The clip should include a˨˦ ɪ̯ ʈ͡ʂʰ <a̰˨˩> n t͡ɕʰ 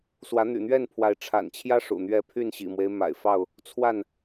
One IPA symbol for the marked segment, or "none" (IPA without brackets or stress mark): a̰˨˩